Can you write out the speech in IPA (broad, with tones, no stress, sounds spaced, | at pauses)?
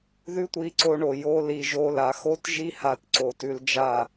ð ʉ˦ tʷ i˧ ǀ o˧ ɳ o˨ j o˧ l i˧ ʒ o˧ l a˨˦ x o˦ t ʒ i˦ h a˦ t ǀ o˧ t ʉ˦ l d͡ʒ a˦˨